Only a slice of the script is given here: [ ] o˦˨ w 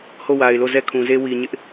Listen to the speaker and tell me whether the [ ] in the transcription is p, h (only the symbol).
h